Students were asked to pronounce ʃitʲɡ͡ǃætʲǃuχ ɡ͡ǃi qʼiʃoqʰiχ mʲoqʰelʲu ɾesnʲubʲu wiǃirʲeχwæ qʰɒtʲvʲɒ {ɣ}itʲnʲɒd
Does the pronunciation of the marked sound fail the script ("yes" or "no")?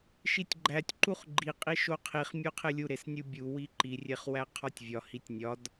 yes